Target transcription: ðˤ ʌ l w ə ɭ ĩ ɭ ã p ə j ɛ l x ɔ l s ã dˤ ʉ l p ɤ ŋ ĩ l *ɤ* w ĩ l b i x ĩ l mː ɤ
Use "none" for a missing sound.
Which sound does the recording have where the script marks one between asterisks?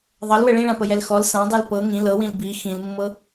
ɤ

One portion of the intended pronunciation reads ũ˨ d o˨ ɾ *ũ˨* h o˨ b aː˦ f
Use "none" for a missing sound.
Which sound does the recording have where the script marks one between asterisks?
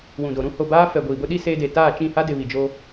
ũ˦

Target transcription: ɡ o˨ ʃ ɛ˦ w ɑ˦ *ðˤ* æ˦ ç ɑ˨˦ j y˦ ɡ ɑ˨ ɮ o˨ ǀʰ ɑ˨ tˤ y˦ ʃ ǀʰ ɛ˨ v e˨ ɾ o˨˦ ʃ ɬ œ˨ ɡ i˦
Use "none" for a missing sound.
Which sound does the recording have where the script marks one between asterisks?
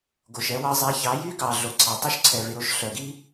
zˤ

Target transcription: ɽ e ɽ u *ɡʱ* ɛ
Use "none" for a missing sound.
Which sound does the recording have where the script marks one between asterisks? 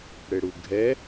ɡʱ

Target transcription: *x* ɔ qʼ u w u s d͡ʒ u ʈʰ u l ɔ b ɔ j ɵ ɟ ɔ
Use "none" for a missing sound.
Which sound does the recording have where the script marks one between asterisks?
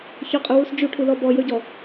ç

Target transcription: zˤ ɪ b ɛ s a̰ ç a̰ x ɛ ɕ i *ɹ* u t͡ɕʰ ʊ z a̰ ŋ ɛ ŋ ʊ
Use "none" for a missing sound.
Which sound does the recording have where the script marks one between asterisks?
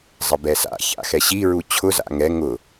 ɹ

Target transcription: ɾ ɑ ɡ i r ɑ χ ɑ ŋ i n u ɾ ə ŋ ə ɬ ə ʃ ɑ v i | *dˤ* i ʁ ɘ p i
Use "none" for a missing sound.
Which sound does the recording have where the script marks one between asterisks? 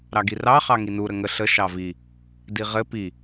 d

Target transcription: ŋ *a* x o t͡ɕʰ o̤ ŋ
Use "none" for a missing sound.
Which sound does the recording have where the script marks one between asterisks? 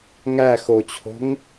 æ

